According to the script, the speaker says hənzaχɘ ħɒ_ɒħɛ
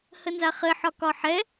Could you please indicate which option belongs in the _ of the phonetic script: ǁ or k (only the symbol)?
k